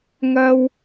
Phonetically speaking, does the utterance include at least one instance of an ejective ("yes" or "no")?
no